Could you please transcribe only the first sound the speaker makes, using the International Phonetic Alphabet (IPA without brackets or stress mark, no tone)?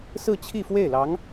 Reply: s